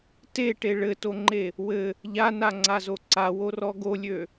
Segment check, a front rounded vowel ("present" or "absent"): present